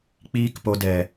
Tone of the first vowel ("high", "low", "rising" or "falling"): high